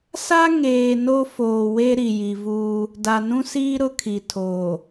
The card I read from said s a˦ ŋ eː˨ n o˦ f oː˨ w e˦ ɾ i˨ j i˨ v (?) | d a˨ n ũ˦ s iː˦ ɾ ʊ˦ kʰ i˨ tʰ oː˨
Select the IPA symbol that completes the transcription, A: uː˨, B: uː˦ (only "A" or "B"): B